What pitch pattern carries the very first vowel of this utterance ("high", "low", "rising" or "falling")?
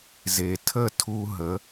low